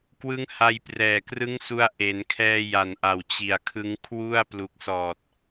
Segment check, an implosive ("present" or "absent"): absent